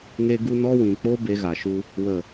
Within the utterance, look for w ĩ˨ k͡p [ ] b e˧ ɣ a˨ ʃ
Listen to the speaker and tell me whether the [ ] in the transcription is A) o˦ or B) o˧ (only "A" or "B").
A